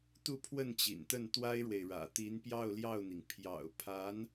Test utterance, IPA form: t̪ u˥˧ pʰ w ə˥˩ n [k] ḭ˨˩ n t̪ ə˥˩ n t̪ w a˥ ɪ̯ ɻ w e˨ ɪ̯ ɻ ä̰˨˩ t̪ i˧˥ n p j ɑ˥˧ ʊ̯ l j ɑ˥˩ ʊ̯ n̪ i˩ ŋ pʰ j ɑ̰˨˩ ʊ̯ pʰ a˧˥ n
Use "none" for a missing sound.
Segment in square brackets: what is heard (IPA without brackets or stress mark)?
t͡ɕ